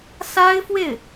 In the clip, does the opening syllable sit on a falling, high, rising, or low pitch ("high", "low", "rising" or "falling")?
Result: high